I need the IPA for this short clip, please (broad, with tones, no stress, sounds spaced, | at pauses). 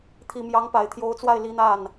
t̪ʰ i˨˩ m j ɑ˧˥ ŋ p a˨˩ ɪ̯ t̪ʰ j o˧˥ ʊ̯ t͡s w a˥˩ ɪ̯ l i˧˥ n̪ a˥˩ n